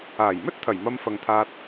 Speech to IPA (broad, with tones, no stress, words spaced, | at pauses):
aː˨˩jmɵ˥t̚t̪ʰɐ˨˩j mɐ˧mfɐ˨ŋt̪ʰaː˧t̚